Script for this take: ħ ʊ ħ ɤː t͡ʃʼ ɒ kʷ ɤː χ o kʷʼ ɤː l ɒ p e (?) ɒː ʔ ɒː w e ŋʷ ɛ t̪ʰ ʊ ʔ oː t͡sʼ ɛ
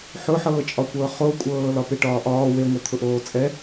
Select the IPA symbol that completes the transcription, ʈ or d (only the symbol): ʈ